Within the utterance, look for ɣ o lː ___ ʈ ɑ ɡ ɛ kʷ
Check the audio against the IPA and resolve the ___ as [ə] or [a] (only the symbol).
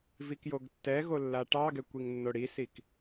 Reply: a